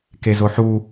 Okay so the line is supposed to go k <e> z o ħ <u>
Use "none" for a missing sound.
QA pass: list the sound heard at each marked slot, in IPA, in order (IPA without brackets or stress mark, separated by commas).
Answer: e, u